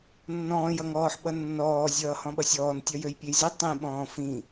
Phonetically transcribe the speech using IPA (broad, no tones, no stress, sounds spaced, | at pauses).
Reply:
nː ɔ̃ː j ʌ ŋ ɔː ħ ɓ ʌ nː ɔː zʲ ʌː h ɔ̃ ɓ ʌ sʲ ɔː n tʲ ʌ j ø j pʲ e j z i tˤ ĩ ɓ ɔ̃ː f ĩ